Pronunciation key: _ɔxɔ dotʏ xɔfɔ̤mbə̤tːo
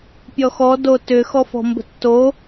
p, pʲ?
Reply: pʲ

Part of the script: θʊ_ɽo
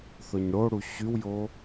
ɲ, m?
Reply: ɲ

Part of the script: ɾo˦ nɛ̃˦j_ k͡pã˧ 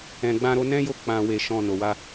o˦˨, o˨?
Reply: o˦˨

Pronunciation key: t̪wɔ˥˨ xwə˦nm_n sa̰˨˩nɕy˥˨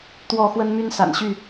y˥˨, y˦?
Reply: y˦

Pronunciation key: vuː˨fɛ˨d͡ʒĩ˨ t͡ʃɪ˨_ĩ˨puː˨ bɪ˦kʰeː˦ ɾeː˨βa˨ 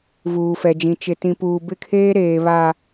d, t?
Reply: t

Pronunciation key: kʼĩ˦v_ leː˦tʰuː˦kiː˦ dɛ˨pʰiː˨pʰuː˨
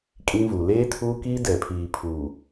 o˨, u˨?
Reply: u˨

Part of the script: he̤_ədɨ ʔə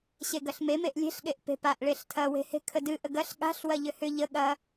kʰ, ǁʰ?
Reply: kʰ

